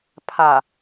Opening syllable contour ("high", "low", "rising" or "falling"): low